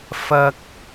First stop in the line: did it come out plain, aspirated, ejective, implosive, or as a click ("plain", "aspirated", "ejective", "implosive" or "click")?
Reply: plain